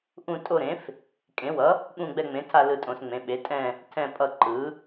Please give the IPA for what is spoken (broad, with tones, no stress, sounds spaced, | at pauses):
ʔ ũ˦˨ tʼ o˦˨ ɾ ẽ˩˥ f | kʼ ẽ˩˥ w ʌ˩˥ | ɠ ũ˦˨ ɡ͡b ɛ˦˨ ŋ͡m ẽ˩˥ tʰ a˦˨ l ɯ˦˨ tʼ õ˩˥ s ŋ͡m ẽ˩˥ ɓ e˩˥ tʼ ɛ̃˦˨ | tʰ ɛ̃˦˨ pʼ ʌ˦˨ ǃ ɯ˩˥